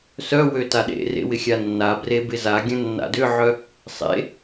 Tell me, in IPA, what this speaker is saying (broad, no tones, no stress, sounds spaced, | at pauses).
s œ w ø t a ɗ ḛ r ḛ w ɪ xʲ a nː a b r e b ɪ z a ɡʲ ə̃ nː a̰ d ʏ ʕ œ | sˤ ḛ